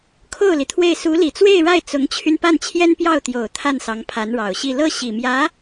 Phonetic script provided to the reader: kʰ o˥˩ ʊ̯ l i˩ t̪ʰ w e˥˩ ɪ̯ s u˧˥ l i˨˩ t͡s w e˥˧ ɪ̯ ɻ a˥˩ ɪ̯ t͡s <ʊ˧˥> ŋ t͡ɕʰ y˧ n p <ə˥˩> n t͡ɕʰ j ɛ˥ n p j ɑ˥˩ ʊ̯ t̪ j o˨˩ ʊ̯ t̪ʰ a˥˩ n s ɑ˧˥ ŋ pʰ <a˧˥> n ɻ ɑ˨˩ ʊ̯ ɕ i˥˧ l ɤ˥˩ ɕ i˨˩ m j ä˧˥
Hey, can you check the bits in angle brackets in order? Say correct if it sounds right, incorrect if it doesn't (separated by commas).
correct, incorrect, correct